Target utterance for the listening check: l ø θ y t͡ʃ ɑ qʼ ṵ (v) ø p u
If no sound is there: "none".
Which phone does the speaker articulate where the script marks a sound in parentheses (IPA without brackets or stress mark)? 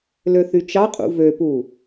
v